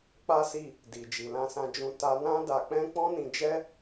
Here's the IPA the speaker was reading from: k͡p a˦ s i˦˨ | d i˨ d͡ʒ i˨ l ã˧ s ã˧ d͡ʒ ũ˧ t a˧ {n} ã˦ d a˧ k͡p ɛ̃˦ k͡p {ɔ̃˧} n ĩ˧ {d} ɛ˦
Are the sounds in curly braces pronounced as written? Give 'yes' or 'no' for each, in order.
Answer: yes, no, no

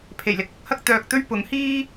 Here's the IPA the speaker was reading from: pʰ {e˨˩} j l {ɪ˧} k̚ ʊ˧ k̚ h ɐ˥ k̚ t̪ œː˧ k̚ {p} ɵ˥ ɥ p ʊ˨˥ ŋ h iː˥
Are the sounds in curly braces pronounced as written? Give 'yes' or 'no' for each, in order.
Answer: yes, no, no

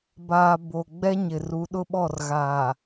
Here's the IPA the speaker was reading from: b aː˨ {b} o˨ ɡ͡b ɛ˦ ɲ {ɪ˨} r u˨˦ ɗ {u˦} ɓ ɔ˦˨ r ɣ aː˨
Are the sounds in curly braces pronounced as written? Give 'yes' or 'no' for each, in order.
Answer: yes, yes, no

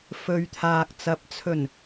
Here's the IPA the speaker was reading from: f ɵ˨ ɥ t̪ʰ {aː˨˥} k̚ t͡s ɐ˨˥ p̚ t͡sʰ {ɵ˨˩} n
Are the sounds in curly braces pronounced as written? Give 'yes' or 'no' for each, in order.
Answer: no, yes

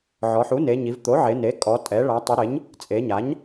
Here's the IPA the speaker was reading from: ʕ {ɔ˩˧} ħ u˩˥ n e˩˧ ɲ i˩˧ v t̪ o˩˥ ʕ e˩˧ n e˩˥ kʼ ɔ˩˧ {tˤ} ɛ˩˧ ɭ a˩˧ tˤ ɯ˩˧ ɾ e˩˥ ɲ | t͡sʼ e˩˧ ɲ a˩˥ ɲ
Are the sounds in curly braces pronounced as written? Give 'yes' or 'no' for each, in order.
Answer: yes, no

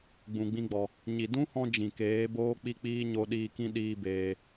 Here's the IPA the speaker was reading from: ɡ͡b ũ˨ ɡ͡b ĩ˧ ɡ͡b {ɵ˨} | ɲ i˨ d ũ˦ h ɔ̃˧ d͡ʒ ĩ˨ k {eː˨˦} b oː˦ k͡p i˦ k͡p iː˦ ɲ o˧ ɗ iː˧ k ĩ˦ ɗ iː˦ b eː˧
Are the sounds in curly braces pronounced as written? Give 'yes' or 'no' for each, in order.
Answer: no, yes

